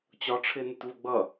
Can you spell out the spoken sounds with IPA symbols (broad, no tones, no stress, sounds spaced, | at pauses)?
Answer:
t͡ɕ ɒ ʈ͡ʂʰ ɪː n ɪ t v ʊ ɡ͡b ʌ